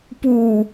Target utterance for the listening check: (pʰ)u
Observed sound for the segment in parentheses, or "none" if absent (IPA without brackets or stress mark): p